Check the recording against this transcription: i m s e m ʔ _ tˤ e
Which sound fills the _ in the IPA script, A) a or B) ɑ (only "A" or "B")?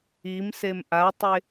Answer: A